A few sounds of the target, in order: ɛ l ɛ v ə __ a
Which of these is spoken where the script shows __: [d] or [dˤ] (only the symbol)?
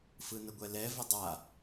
dˤ